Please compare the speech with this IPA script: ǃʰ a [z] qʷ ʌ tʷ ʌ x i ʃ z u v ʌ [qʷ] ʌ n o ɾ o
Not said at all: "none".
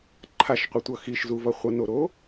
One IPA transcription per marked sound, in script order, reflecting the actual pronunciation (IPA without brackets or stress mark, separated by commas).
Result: ʃ, χʷ